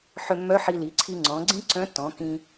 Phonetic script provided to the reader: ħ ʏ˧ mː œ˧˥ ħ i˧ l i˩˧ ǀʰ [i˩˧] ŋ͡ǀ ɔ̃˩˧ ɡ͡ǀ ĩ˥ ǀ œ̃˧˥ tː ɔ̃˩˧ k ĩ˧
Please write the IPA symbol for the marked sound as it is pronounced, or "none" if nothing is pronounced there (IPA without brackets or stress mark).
i˧